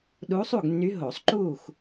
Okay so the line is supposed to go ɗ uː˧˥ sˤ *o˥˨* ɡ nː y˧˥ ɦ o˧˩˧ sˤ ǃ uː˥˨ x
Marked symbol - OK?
no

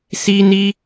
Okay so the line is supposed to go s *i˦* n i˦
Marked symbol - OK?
yes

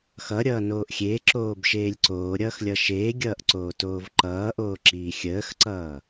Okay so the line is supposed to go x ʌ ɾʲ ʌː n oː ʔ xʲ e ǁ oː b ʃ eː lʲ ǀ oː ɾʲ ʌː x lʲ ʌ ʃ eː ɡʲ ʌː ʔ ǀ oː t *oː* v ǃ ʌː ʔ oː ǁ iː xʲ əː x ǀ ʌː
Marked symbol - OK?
yes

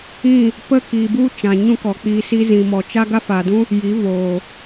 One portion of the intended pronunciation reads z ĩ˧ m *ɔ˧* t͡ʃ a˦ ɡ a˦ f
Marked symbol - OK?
yes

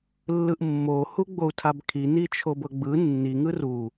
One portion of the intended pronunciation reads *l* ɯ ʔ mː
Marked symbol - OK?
no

